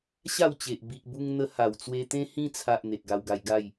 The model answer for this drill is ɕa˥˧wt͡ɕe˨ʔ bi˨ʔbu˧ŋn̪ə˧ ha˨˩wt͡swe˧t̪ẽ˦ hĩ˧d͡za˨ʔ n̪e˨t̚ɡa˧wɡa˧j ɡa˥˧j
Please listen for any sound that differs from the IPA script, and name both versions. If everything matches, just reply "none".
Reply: d͡z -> t͡sʰ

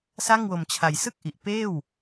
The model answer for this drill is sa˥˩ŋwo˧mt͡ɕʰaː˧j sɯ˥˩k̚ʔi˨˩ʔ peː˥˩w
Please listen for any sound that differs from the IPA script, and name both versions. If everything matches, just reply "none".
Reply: aː˧ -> a˧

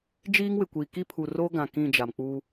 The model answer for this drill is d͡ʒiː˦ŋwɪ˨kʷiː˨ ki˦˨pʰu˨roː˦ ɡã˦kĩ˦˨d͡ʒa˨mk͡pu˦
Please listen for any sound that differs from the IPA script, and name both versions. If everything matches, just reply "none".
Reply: ã˦ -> ã˨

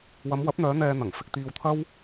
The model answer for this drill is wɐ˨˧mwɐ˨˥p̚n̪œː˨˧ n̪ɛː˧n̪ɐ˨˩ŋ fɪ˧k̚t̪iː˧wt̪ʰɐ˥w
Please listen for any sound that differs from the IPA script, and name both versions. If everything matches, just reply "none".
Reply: none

